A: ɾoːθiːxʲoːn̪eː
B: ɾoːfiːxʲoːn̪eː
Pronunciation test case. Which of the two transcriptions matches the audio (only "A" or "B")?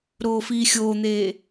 B